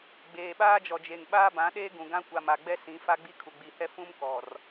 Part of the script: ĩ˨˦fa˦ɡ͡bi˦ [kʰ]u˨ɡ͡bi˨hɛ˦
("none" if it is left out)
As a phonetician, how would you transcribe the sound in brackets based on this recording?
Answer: kʰ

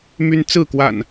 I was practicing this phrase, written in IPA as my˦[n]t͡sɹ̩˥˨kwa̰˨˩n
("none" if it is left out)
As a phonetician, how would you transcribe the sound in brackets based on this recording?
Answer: n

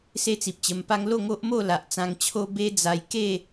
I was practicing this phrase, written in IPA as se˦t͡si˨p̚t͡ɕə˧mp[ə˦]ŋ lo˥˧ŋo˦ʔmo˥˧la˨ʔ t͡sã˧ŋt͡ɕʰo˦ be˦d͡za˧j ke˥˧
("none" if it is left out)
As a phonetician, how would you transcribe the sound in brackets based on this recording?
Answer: a˦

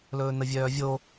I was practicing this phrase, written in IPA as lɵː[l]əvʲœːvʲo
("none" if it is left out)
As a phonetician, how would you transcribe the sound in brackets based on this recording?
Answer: n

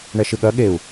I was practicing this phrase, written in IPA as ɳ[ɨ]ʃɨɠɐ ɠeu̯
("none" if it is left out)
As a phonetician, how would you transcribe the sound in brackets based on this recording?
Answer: ɛ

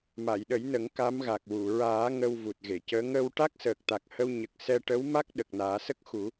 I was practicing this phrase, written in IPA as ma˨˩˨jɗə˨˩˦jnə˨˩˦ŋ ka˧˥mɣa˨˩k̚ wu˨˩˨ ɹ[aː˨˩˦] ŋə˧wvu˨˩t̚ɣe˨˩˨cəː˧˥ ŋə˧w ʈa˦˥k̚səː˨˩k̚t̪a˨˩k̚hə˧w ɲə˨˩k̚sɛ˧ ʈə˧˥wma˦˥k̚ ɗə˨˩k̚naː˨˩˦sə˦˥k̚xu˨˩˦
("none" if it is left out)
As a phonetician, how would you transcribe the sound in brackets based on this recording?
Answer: aː˨˩˦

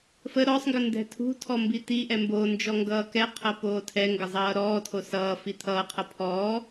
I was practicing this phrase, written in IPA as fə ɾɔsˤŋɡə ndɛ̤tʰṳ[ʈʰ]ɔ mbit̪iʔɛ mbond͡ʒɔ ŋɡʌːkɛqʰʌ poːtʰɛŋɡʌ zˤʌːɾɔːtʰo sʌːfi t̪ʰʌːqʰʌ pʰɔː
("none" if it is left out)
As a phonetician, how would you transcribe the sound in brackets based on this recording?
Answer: tʰ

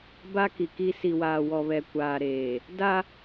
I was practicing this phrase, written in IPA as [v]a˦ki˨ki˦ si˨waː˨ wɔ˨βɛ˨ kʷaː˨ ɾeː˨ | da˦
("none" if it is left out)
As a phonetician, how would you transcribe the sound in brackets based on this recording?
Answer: b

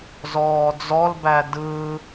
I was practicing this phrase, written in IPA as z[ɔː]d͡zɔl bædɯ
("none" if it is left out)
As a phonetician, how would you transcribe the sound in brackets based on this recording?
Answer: ɔː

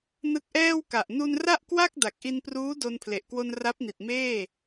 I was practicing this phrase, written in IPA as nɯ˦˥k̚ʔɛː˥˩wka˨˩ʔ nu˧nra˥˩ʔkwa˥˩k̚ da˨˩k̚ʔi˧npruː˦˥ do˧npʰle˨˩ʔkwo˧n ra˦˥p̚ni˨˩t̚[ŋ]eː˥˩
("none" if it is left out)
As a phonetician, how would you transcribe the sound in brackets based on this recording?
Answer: m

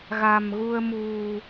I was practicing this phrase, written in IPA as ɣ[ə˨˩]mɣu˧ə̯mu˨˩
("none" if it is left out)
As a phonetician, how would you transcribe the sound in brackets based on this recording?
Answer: a˨˩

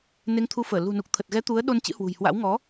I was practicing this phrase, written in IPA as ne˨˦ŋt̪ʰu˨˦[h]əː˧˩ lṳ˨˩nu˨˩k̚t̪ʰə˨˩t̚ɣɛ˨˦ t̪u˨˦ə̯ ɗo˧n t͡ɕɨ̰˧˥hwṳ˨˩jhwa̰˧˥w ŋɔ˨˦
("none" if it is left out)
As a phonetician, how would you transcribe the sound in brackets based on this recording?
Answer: f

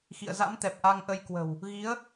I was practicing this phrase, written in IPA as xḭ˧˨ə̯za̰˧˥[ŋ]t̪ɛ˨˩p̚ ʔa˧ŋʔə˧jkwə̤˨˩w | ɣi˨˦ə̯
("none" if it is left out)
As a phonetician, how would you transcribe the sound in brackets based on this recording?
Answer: m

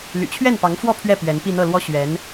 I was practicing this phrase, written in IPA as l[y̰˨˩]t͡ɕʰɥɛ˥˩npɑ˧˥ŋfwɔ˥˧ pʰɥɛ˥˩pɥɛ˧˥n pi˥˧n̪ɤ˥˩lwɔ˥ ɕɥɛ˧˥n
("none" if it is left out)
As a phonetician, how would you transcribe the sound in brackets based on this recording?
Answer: y̰˨˩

